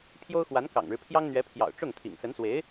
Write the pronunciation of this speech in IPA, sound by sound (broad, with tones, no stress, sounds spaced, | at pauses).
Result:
pʰ j o˥ ʊ̯ x w a˧˥ n k ɑ̰˨˩ ŋ ɻ ɻ̩˦ pʰ j ɑ˥ ŋ n̪ ɥ ɛ˧˥ pʰ j ɑ̰˨˩ ʊ̯ ʈ͡ʂ ʊ˥˩ ŋ t̪ʰ ḭ˨˩ ŋ s ə˧˥ n s w e˧˥ ɪ̯